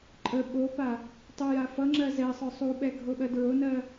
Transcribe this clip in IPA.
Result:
ǃʼ ə ɓ o p a | tˤ u j a f ʌ ŋ͡ǁ ɜ z ɛ sˤ œ sˤ u ɓ ɛ ɡʱ o ɓ ɜ d ɹ o n ɜ

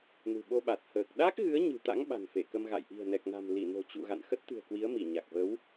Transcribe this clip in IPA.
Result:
n ṳ˨˩ ɓ o˧ ɓ a˨˩ t̚ h əː˨˩ k̚ ɗ a˦˥ k̚ ɣ ɨ˨˦ ə̯ ɲ ɨ̤˨˩ t̪ a̰˧˥ ŋ ɓ a̤˨˩ n f e˧˩ k ə˧ m ɣ a̰˧˨ j ʔ i̤˨˩ ə̯ n ɛ˨˩ k̚ n a̤˨˩ m l i˧˩ n o̤˨˩ t͡ɕ ṵ˧˨ ɣ a̰˧˨ n x ə˦˥ t̚ t̪ ɨ̤˨˩ ə̯ k w i˨˦ ə̯ m i˧˩ ɲ a˨˩ k̚ v ə˨˦ w

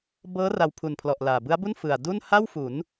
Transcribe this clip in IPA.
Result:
b ɤː˦˥ r a˧ w pʰ u˨˩ n pʰ l ɔ˨˩ ʔ l aː˨˩ b ɯ˦˥ a̯ b u˥˩ n f ɯ˨˩ a̯ d u˥˩ n h a˥˩ w f u˩˦ n

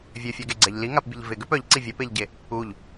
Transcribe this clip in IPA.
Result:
vʲ ø fʲ œ ɡ e ɡ͡ǀ ɛ ʎ l i ŋ a p bʲ ə ʎ v ɪ ɡ ø p œ ʎ ǀ i vʲ ɛ p e ʎ ɟ e | u ʎ

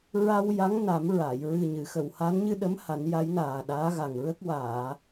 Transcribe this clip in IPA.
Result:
ɹ a˧ w j a˧˥ ŋ n a˨˩˦ m ɹ a˨˩˨ j ɹ ɨ˨˩ ɲ ɨ˨˩˨ x ə˨˩˨ w h a˧˥ n ɲ ɨ˧ ɗ ə˧˥ m h a˨˩˦ n j a˧˥ j n aː˨˩ ɗ aː˧˥ ɣ a˨˩ ŋ ɹ ə˦˥ k̚ w aː˨˩˨

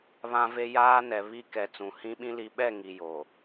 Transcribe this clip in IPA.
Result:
β ã˨ v e˨ j aː˦ n ɛ˨ β i˦ k ɛ˨ t͡s ũ˨ h ĩ˦ ɓ ĩ˦ l i˨ ɓ ɛ˦˨ ŋ i˨ j o˨

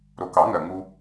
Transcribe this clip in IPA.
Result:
ɾ o˨˩ k ɑ˨˩˦ ŋ ɜ˨˩ ŋ u˧

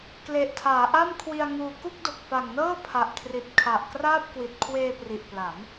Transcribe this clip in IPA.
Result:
k l e˨˩ ʔ tʰ aː˩˦ ʔ a˥˩ m kʰ w i˧ a̯ ŋ uː˧ k u˥˩ k̚ d o˨˩ k̚ f a˨˩ ŋ n ɤː˥˩ pʰ a˨˩ ʔ kʰ r i˨˩ t̚ kʰ a˨˩ ʔ k r aː˥˩ p̚ k w i˨˩ t̚ kʰ w eː˧ p r i˨˩ ʔ p l a˩˦ m

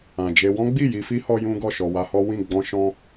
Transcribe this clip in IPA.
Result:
ã˨ d͡ʒ e˧ w ɔ̃˦ ɡ͡b i˦˨ j i˧ f i˦ h ɔ˧ j ũ˦ ɡ ɔ˦˨ ʃ ɔ˨ w a˧ h ɔ˦ w ĩ˦˨ ɡ͡b ɔ̃˧ ʃ ɔ̃˧

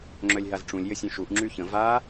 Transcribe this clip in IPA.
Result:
ŋ͡ǁ œ lʲ ɦ a z ʈ͡ʂ ũ lʲ j ə sʲ œ̃ ʃ u ʔ ŋ͡ǁ y ç ə̃ v a

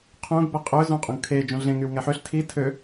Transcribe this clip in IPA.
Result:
qʰ ũ ɡ b ɛ qʼ ø z ũ qʼ ũ ɡ kʰ e d͡ʒ ũ ɮ ẽ ŋ y w ŋ ɛ ħ ø ɬ tʰ i tʰ ø

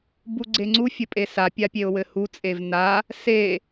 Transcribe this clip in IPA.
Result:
b u ɡ͡ǀ e ŋ͡ǀ u fʲ ɘ pʼ e s a pʲ a pʲ e ʊ̯ w ɘ h u t͡sʼ e v n a | s e

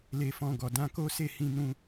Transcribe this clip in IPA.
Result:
l e˧ f ɔ̃˧ ɡ ɔ˨ d ã˧ k o˦ s e˦˨ h ĩ˧ n ũ˧

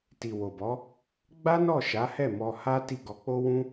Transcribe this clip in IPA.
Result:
t i˨ w o˨ b ɔ˨˦ | ɡ͡b a˦ n ɔ˦˨ ʃ a˨˦ h ɛ˦˨ m ɔ˧ h a˦ t i˦˨ ɡ ɔ˧ k͡p o˦ w ũ˦

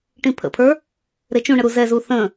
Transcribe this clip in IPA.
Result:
ʈ ĩ pʰ ə̰ pʰ ə˞ | ɾ e t͡ʃ ũ ɳ ə ɾ u z ɛ z u θ ə̃

